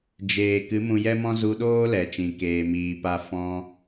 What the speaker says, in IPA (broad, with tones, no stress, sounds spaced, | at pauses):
d͡ʒ eː˨ k ɨ˨˦ m ũ˧ j ɛ˦ m ɔ̃˦ z u˧ ɗ oː˦ l ɛ˨ t͡ʃ ĩ˨ k eː˨ m iː˨ p a˧ f ɔ̃˧